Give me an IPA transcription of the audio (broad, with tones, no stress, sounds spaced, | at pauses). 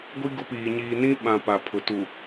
ɡʷ i˦ ɡ ʊ˦ p iː˨ ɲ iː˨ n ĩ˦ ɓ ã˨ p a˨ pʰ ʊ˨ t u˨